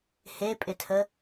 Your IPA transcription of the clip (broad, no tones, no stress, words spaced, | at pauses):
hepʼɪtʰə